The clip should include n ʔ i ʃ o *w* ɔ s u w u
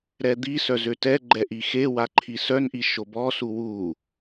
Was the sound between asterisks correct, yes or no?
no